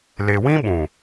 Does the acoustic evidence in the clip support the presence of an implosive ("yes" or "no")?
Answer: yes